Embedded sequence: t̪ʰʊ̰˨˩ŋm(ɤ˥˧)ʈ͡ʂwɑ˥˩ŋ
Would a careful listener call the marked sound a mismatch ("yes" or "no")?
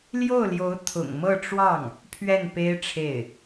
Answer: no